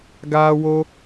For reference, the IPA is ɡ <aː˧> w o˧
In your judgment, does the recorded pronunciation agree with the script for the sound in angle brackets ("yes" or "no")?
yes